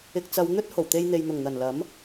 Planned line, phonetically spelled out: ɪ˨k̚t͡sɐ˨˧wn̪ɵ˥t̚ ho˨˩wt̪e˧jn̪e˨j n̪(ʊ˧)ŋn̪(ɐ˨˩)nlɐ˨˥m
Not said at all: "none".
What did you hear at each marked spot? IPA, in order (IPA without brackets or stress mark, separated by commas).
ʊ˨˩, ɐ˨˩